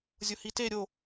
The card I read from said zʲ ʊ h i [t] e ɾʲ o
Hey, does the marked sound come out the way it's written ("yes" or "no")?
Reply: yes